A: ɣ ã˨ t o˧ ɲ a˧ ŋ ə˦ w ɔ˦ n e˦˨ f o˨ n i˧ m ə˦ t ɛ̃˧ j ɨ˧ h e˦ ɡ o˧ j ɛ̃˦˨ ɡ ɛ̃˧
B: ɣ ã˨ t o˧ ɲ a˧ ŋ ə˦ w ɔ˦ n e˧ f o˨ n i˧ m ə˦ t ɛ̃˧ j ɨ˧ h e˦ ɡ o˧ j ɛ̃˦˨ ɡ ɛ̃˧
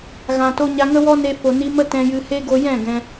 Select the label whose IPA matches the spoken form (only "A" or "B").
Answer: B